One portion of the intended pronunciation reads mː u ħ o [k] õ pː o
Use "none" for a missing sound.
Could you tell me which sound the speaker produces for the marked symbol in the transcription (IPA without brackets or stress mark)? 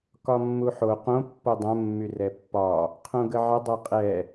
q